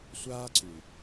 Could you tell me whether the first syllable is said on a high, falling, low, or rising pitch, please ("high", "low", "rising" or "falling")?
high